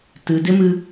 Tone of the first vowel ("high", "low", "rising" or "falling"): low